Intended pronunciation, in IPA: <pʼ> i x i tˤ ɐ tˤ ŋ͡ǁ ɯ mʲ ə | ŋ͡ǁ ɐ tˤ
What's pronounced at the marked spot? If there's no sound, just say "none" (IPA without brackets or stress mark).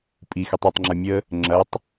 pʼ